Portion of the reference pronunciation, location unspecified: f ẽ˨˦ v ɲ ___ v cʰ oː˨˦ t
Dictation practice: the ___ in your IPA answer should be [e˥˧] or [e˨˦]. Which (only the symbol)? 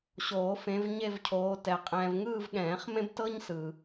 e˥˧